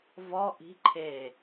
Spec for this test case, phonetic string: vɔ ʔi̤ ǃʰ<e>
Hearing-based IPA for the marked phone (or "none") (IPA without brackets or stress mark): e